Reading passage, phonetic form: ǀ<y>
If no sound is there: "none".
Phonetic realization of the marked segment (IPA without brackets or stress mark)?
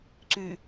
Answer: y